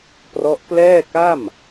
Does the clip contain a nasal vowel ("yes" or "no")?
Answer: no